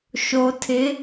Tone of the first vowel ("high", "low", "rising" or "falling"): low